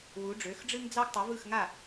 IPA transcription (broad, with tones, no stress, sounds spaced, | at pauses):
w u˩˥ ɖ͡ʐ ø˩˥ x ɖ͡ʐ ɨ˥ ŋ d͡z ɑ˥ ɡ tˤ ɯ˩˥ v ɯ˥˩ x ŋ a˥˩